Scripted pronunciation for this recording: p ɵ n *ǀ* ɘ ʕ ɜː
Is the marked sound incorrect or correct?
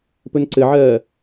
correct